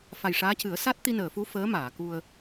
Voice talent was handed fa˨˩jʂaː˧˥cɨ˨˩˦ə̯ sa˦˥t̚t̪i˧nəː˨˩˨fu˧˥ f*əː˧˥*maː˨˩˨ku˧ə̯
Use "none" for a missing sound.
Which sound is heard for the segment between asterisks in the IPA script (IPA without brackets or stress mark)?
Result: əː˧˥